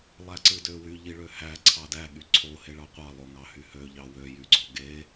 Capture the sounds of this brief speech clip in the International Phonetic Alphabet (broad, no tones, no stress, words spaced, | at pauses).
lˠæǀɯdøwy ʎiɭøhæ ǀʰɑdæ ɠyǀʰo heɭɑqʷɑ lˠoŋɑhyhø ʎɑwø jyɡ͡ǀoɡe